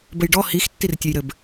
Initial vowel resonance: oral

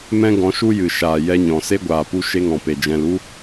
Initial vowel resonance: nasal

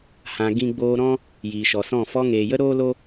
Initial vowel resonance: nasal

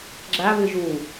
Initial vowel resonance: oral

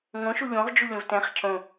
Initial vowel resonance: nasal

